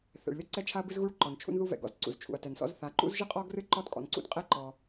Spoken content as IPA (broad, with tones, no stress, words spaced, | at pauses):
θɛ̰˩ɭlʲɔ˥ǀɛ˥t͡ʃʰa˥ɐ̯ bɨ˥zɣu˥ɭ ǃɔ˩nt͡ʃʰṵ˥nðu˥ vɛ̰˩ɡɔ̰˩zǀṵ˩z t͡ʃʰṵ˩ɐ̯tɛ˩nsɔ̰˥z θa˩ǃṵ˥zʒɨ˥qʼɔ˥ ɡrɨ˥ ǃɔ˥tkʼɔ̰˩nǀṵ˥tqʼɛ˥ ǃɔ˩